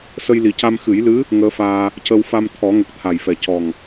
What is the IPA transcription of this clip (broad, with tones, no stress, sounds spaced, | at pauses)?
s ə˧ j l i˨˩ c a˧ m x ɨ˨˩˦ j l ɨ˧˥ | ŋ əː˧˥ f aː˧ | c ə˧ w f a˧ m t̪ʰ ɔ˨˩˦ ŋ ə˨˩ k̚ t̪ʰ a˨˩ j f ɛ˨˩ c ɔ˨˩ ŋ